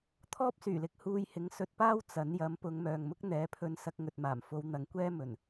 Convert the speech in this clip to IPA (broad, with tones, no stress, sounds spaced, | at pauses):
t̪ʰ ɔː˥ p̚ s yː˨˩ l ɪ˧ k̚ h uː˧ j h ɪ˨˥ ŋ s ɵ˧ t̚ p aː˥ w t͡s ɐ˨˥ n j ɐ˨˥ m p ʊ˨˧ ŋ m œː˨ ŋ m ʊ˥ k̚ n̪ ɛː˨˥ pʰ ɵ˧ n s ɐ˧ k̚ ŋ ɵ˨ t̚ m aː˨˩ m f o˨˧ w n̪ ɐ˨˥ ŋ kʷ ɛː˥ m ɵ˨˩ n